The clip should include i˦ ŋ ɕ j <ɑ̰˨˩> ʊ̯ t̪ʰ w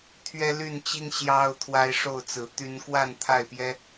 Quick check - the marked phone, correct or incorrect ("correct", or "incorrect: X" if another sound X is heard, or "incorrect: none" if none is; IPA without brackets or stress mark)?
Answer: incorrect: ɑ˦